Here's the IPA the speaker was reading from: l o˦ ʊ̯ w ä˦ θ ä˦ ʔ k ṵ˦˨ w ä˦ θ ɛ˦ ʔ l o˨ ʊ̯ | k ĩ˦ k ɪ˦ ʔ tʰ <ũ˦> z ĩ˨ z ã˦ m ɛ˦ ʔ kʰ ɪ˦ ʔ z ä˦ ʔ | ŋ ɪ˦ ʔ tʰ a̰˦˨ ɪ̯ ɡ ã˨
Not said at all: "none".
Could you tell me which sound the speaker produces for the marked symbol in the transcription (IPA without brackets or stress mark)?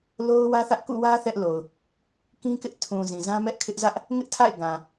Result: ũ˨